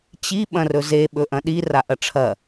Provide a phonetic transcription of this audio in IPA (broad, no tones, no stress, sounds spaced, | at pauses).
t͡ɕ i ɓ ɐ̃ r ɵ z e ɓ ɵ ʔ ɐ̃ ɗ i r a ʔ ɐ ʈ͡ʂʰ ɐ